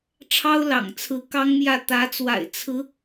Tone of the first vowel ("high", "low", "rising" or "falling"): high